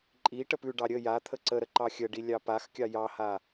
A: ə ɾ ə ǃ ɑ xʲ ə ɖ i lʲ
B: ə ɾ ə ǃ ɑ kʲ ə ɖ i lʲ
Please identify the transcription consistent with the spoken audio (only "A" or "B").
A